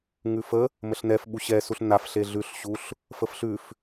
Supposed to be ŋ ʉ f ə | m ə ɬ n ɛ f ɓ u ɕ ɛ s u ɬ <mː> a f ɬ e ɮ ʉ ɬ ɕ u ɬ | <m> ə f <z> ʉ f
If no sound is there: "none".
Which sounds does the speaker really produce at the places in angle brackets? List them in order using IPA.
n, f, ɬ

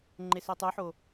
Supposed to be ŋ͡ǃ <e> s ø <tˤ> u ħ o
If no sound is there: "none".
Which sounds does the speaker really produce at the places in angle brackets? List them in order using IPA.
e, tˤ

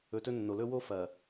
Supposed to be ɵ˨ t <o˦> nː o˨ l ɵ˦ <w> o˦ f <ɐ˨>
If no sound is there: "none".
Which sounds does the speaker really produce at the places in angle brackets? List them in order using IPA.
ɵ˦, w, ɐ˨

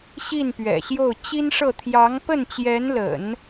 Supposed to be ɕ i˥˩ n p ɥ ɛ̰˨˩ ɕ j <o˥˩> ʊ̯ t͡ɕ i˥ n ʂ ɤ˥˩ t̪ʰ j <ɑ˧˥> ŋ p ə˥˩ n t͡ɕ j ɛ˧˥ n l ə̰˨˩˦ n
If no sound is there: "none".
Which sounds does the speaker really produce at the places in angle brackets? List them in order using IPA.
o˥˩, ɑ˧˥

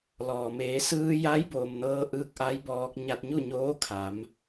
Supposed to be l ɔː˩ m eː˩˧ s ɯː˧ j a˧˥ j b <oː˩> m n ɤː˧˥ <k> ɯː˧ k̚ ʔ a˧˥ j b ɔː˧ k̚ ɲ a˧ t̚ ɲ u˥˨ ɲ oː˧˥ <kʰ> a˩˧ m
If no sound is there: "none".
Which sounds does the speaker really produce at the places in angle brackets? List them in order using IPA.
oː˩, ʔ, kʰ

